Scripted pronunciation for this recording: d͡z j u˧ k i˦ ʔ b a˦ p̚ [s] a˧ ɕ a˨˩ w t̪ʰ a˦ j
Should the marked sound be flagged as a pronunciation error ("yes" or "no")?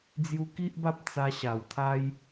yes